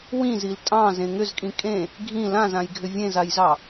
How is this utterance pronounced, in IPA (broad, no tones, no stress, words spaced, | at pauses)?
wĩzil tʼɑ̃zẽ ŋʏzkʼĩ kʼẽ | ɡʱĩ lãzãjɡʱʏ vʲẽzajzɑ